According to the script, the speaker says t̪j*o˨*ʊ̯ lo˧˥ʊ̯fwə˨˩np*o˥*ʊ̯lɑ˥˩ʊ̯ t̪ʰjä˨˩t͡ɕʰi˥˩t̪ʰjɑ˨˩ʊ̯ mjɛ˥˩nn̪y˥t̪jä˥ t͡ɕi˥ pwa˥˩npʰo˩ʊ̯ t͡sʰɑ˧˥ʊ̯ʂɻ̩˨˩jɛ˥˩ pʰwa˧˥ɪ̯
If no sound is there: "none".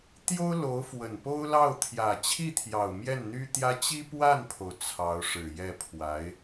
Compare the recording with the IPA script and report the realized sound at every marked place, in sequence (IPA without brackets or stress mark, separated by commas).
o˥, o˥